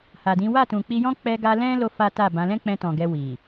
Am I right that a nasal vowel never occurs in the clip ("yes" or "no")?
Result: no